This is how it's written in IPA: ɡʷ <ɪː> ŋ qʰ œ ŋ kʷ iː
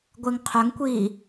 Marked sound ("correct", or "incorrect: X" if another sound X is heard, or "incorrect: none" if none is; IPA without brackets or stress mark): correct